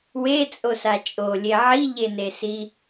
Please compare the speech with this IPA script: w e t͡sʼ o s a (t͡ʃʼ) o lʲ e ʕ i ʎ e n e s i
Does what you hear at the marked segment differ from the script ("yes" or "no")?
no